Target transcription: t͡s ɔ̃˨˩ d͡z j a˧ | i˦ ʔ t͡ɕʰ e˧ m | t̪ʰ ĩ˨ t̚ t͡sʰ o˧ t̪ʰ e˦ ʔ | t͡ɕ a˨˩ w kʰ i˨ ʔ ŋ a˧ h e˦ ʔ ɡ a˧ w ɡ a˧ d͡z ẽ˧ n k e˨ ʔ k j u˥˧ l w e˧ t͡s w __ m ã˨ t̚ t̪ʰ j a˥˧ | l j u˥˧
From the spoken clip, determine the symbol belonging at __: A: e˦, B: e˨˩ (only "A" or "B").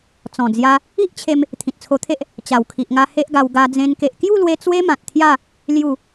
A